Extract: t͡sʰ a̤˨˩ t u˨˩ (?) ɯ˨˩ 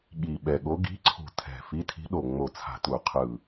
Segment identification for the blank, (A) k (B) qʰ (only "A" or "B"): B